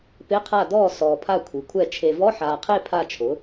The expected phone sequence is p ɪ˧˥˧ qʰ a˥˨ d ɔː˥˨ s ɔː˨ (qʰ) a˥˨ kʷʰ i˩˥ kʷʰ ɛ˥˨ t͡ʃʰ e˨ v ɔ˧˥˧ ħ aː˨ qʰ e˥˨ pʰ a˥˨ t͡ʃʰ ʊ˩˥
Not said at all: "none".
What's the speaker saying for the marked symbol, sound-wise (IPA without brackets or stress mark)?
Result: pʰ